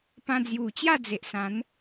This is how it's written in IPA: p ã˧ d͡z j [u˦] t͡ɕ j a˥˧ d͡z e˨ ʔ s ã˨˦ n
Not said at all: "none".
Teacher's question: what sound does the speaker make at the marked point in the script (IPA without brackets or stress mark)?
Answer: u˨˩